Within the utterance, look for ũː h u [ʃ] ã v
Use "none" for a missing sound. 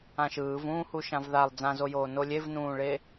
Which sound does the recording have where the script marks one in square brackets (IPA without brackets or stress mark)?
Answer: ʃ